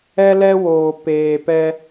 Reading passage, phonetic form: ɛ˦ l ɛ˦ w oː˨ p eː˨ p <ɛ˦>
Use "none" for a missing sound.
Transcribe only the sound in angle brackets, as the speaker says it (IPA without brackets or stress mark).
ɛ˦